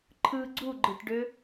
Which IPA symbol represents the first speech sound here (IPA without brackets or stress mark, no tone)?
ǃʰ